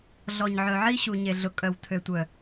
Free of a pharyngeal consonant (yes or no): no